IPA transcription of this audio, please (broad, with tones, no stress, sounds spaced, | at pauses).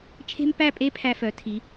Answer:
t͡ʃʰ e̤˥ m p æ˥˧ pʼ e˥ pʰ æ˧ f œ˩˧ tʰ i˩˧